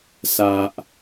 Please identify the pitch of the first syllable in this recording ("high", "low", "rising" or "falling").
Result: high